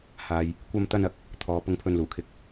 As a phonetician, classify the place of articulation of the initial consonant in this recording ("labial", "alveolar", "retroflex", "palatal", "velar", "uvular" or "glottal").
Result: glottal